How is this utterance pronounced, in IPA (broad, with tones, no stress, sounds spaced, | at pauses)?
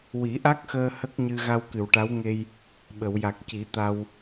w i˨˩˦ ʔ a˦˥ k̚ x əː˧ h ə˦˥ k̚ ɲ ɨ˧ ɣ a˧ w k ɨ˨˩˨ w ʈ a˧˥ w ŋ e˧ j | ɓ ə˨˩˨ w j a˨˩ k̚ c i˨˩˦ t̪ a˧ w